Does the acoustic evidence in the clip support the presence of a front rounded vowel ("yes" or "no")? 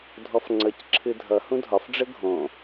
no